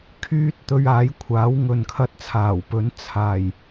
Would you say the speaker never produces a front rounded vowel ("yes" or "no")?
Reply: no